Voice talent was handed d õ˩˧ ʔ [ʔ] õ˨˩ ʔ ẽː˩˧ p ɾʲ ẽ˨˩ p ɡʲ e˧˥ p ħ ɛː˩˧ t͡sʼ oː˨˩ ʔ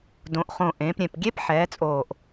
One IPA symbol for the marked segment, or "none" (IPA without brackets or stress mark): χ